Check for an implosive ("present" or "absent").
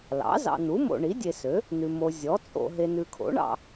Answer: absent